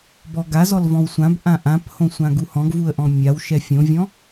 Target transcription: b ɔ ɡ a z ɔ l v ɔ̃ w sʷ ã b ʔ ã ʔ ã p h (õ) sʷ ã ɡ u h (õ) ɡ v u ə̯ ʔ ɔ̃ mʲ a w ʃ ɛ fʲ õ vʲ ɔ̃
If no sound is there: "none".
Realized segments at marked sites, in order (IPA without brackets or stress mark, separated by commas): õ, ɔ̃